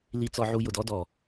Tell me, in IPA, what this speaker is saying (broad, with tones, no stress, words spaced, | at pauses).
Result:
li˧t͡sɔ˧ʕu˧ jʊ˨dɔ˦dɔ˨